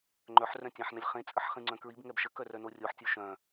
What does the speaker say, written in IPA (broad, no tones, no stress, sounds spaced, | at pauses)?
ŋ͡ǃ œ ħ r œ̃ tʲ ã ħ n ə lʲ χ ẽ t͡sʼ ə ħ χ ĩ ŋ͡ǀ œ̃ k ɹ i b ŋ ɛ b ʃ ə k œ r œ n o rʲ o ħ tʲ o ʃ œ̃